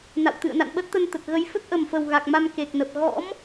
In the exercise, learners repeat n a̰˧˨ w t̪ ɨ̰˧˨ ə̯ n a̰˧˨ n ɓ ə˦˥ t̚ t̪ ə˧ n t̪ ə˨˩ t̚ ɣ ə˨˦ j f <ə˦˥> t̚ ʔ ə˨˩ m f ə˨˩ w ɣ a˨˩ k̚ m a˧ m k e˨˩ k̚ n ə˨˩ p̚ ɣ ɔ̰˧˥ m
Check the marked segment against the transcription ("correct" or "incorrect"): correct